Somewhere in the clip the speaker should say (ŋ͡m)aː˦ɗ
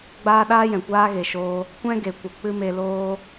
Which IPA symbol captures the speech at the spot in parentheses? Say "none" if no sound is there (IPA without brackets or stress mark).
ɡ͡b